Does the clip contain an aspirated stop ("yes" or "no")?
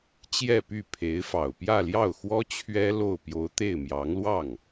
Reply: yes